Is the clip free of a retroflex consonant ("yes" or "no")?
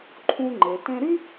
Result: yes